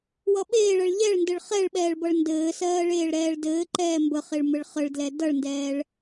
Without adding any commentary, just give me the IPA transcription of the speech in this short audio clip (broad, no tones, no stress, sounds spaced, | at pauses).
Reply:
w ʌ ɓ eː ɭ ɜ ɭ ʎ ɛ ɭ n d ɘ ɭ χ ɛ ɭ ɓ ɛː ɭ b ʌ ɭ n d ɘː s ɜː ɭ eː ɭ ɾ ɛː ɭ d ɘː ǃ ɛː m b ə χ e ɭ m ɘ ɭ χ ə ɭ d l ɛ d ʌ ɭ n d ɛː ɭ